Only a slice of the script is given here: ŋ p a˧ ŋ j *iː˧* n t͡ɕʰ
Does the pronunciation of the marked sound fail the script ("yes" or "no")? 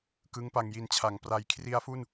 yes